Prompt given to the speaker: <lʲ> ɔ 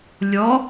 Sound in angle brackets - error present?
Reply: no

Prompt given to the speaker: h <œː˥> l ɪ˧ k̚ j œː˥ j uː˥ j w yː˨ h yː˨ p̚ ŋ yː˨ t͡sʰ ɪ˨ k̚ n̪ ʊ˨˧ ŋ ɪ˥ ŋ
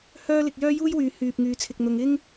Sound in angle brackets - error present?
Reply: no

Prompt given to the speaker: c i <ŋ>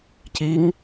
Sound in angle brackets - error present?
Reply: no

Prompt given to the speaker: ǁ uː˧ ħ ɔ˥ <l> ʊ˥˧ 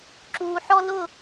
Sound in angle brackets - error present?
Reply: no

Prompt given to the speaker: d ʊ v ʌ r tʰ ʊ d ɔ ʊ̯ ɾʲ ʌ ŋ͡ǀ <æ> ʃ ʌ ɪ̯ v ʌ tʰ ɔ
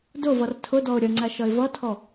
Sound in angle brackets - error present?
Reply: no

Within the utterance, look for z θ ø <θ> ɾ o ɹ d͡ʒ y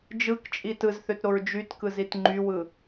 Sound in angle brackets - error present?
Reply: yes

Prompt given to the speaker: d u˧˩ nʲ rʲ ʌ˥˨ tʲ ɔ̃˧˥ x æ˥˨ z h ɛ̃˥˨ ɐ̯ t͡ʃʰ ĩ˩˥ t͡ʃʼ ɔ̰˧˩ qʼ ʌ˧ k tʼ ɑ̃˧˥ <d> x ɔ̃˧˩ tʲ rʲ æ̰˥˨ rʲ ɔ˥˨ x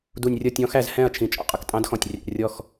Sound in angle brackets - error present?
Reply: no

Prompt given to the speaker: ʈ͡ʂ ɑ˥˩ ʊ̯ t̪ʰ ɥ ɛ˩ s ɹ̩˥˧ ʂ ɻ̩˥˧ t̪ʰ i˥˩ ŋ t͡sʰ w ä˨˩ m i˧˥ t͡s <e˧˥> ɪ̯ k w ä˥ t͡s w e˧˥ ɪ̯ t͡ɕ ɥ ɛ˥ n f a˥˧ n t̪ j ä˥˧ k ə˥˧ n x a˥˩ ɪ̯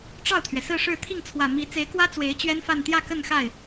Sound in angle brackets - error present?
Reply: no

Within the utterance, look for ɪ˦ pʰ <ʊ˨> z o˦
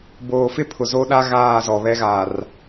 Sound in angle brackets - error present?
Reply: no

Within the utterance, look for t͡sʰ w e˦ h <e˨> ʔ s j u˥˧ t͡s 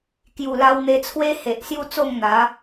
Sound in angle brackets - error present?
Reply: no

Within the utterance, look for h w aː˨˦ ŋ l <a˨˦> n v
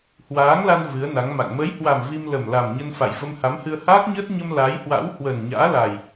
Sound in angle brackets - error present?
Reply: yes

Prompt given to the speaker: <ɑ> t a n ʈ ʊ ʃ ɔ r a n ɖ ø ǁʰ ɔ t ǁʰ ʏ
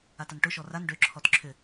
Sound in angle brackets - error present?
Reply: yes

